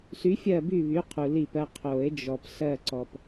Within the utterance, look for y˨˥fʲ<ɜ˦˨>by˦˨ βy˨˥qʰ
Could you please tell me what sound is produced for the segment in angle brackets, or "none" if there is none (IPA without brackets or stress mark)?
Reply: ɜ˦˨